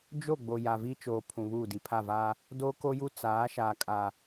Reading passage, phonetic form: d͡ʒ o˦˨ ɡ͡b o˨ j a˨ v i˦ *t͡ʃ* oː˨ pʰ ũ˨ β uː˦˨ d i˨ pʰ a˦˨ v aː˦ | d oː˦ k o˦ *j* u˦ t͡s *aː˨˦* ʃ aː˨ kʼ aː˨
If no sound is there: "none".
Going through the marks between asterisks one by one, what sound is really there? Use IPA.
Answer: t͡ʃ, j, aː˨˦

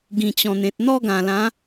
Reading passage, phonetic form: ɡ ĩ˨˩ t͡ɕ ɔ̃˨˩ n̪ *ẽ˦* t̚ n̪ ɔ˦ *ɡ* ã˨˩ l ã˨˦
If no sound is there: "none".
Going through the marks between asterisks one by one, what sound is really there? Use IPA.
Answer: ẽ˨, ɡ

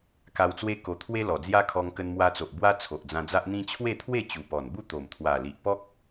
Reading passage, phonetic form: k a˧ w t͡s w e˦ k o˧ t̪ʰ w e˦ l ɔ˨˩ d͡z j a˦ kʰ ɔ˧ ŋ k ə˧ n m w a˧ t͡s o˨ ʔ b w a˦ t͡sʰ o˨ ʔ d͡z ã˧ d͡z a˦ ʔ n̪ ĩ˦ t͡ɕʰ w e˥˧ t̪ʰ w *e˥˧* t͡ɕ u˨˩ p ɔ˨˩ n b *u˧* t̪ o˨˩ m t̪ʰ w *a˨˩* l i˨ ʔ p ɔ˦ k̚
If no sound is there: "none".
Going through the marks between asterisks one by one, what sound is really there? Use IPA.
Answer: e˥˧, u˥˧, a˨˩

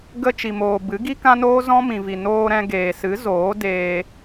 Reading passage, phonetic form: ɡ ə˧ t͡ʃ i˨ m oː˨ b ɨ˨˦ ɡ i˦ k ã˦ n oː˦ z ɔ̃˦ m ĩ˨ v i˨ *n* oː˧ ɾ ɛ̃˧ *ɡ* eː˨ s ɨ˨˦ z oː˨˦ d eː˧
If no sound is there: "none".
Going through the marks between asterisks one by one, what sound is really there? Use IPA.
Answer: n, ɡ

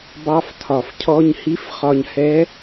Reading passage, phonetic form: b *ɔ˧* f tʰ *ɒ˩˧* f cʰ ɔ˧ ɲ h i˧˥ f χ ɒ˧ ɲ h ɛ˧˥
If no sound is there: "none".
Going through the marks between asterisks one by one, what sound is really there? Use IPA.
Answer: ɑ˧, ɒ˩

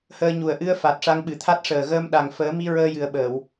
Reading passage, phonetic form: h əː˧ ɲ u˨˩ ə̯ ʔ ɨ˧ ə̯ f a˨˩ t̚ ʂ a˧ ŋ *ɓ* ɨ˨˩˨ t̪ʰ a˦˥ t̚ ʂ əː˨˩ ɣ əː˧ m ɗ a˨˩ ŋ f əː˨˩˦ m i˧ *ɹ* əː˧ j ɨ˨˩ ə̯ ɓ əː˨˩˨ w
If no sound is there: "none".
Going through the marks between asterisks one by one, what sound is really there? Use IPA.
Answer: ɓ, ɹ

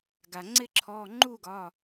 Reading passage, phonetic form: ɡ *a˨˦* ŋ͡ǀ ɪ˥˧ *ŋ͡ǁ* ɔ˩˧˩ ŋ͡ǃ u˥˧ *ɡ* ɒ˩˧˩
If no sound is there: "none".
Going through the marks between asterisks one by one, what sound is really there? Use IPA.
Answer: a˩, ǁʰ, ɡ

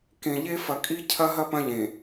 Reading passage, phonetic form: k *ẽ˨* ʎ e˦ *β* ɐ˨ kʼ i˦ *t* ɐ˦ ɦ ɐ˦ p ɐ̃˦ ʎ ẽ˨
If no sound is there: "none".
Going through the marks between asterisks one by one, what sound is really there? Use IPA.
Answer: ẽ˨, f, cʰ

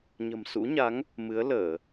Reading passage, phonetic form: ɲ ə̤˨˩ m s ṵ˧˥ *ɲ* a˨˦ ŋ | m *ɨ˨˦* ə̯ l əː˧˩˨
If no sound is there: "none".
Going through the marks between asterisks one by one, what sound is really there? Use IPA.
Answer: ɲ, ɨ˨˦

